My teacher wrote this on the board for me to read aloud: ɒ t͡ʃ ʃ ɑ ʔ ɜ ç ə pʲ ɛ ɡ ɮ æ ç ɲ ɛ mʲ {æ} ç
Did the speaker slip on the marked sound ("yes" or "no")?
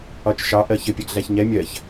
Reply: yes